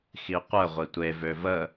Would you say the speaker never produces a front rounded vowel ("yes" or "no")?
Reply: no